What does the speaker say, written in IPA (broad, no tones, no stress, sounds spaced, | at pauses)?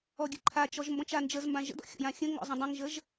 ɔ ɡʲ ɘ ǃʰ a t͡ʃ ɔ ʒ m b ɔ̃ t͡ʃ a n d͡ʒ ə z m b ã ʒ ə̰ d ɔ̰ xʲ ɔ̰ j ã xʲ ə̃ ŋ ɔ̰ zˤ ə̃ dˤ ə̃ ŋ ʒ ə ʒ